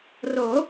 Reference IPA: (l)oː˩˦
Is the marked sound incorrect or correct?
incorrect